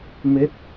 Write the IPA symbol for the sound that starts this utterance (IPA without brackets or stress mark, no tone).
m